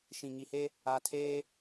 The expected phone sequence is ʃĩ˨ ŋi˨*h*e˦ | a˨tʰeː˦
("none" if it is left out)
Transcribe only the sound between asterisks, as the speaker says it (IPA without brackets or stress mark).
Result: h